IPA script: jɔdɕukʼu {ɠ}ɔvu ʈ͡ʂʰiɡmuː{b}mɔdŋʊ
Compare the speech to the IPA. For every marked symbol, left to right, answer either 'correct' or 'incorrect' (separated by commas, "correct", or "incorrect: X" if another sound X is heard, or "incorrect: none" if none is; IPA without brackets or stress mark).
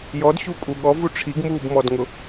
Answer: correct, correct